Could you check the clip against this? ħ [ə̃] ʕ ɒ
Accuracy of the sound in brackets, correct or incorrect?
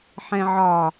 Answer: incorrect